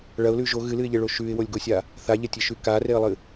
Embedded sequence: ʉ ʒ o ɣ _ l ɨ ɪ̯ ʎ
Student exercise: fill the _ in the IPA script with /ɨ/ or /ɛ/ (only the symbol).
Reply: ɨ